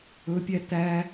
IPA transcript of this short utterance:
ɵpʲæ t̪æ

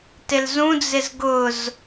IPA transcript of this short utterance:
tɪlzũd͡zɪz ɡʊz

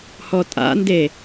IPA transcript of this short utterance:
hɔtʼa̰nde

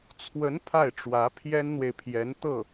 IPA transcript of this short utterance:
t͡sʰwə˧˥n pʰa˥˩ɪ̯ʈ͡ʂwä˧˥ pʰjɛ˥nn̪we˨ɪ̯pʰjɛ˧˥n t̪ɤ˥˩

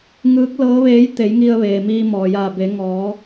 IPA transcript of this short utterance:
ŋɯː˧˥k̚ lɤː˧˥ʋeː˧˥j t̪e˩˧jŋi˧ə̯ʋeː˩ miː˧mɔː˩jaː˧˩be˩˧ ŋɔː˩˧

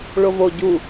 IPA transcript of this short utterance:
ɭovo ɟu

